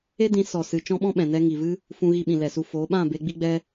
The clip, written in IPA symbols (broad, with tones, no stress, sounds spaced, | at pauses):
e˦ d ĩ˨˦ s ɔ˨ s ɨ˨ t͡ʃ ɔ̃˦ ɓ ɔ̃˦ ɓ ɛ̃˨ n ɛ˧ ŋ i˨ v ɨ˦ | f ũ˧ ɣ i˧ ɓ ĩ˨ l ɛ˨ s u˧ f o˨˦ ɓ ã˦˨ b e˧ ɡ͡b i˦ ɡ͡b ɛ˦